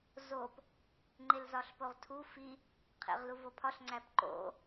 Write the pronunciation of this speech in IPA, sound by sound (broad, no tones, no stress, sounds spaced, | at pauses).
z o p | ŋ͡ǃ e l z ɒ ɬ p o ʁ tʰ u f i | qʰ ḛ ʁ l u v o pʰ ɒ ɬ ŋ͡ǀ æ p ǃ o̰